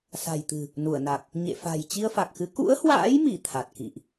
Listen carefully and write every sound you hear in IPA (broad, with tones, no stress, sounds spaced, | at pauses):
s a̤˨˩ j t̪ ɨ̤˨˩ | n u˧˩ ə̯ n a˨˩ k̚ | ɲ ḛ˧˨ f a̤˨˩ j t͡ɕ i˧ ə̯ f a˨˩ k̚ x ɨ˨˦ k ṵ˧˥ ə̯ h w a̰ː˧˥ j m i˧˩ t̪ʰ a˨˩ t̚ k ḭ˧˨ ʔ